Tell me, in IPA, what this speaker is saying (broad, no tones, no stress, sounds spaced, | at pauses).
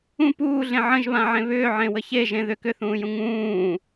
ũ p uː ɮ ẽ ʕ ə̃ ʒ β ã ʕ ẽ β ʏː ʕ ẽ w ə ç e ʒ ẽ ð ʏ k ʏ θ ũː j ũ ŋ ũː